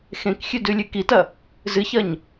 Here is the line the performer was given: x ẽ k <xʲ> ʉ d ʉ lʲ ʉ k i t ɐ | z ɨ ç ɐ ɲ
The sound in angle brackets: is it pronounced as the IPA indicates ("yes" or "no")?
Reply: yes